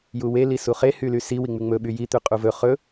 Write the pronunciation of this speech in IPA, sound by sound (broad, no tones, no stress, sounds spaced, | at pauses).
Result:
j u w e l i s u χ e h y l y s i w i ŋ͡m y ŋ͡m ɵ ɓ y j i t̪ y qʼ u v ɵ χ ɵ